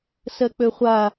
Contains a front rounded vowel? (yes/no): yes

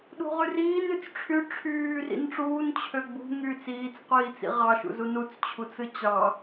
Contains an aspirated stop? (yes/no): yes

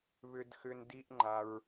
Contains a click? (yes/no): yes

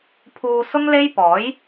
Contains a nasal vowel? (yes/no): no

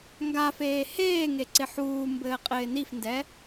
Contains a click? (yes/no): yes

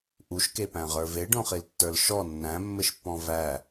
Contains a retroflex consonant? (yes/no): yes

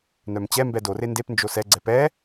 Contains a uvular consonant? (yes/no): no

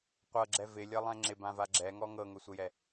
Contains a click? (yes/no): yes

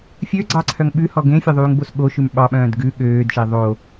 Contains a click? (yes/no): yes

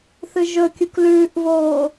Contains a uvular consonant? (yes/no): no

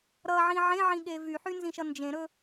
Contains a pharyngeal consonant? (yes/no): yes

